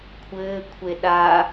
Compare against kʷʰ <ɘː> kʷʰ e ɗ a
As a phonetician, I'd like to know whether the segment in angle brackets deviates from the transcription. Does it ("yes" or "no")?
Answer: no